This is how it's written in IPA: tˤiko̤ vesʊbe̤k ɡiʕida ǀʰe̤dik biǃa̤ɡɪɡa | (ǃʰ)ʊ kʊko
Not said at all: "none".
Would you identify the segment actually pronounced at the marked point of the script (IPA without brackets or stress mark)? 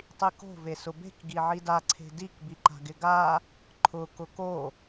ǃʰ